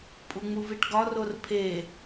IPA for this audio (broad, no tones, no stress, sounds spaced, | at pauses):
pʼ u ŋ͡m u v i ʈ ɡ ɒ r o r pʰ e